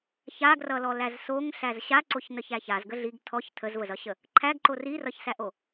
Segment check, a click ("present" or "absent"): present